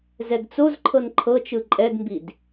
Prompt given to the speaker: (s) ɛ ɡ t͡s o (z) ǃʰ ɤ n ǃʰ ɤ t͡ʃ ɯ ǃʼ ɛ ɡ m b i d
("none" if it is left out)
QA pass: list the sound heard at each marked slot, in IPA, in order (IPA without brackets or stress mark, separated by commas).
z, z